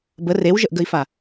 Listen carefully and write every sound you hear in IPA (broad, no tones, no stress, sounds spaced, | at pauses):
b ə r e w ʒ ə ʔ ɡ ə i̯ f a